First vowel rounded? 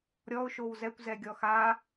yes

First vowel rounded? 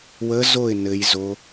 no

